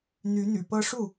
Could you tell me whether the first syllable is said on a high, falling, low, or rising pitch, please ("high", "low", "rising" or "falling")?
rising